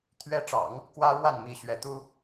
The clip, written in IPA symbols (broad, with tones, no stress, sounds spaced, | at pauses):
t̪ʰ ɥ ɛ˧˥ ʈ͡ʂ ɑ̰˨˩˦ ŋ | k w ä˥ ɻ w a˥˩ n m i˥ ɕ ɥ ɛ˧˥ t̪ u˥